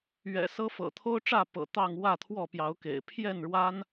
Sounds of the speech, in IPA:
ɥɛ̰˨˩sɤ˦fɤ̰˨˩ t̪ʰo˦ʊ̯ʈ͡ʂä˥˨ pɤ̰˨˩ t̪ɑ˥˨ŋ wä˥˨t̪ʰwɔ˥˨pjɑ˨˦ʊ̯kḛ˨˩ɪ̯ pʰjɛ˥˨nɻwa˦n

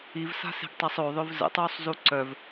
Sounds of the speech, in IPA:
ivsa̤se̤ɡtˤɛsˤ oðˤøv zə̰tˤuːsˤzu ǀœv

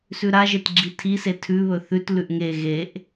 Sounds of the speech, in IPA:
sʉɾaʒetɡ͡ǁi tʰise tʰʉβɵ θʉt lʉʔŋe ɣeʔ

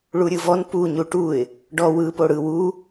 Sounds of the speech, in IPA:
ɭuɾʲɯvɔn pu ɲuʈuɪ̯ | ɖɔ wɯ poɽɯ wu

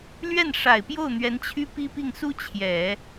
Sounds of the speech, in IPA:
lɥɛ˥˩nʂa˨˩ɪ̯pjo˥˩ʊ̯n̪ɥɛ˧˥n t͡ɕʰy˥pi˥pi˥˩ŋ su˥ t͡ɕʰjɛ˨˩˦

